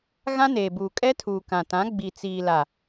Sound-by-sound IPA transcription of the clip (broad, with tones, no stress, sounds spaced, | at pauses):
ɣ ã˦ n eː˨ b uː˨ kʼ ɛ˦ tʰ uː˨ k ã˨ t ã˨˦ ɡ͡b i˨ t͡s iː˨ l a˨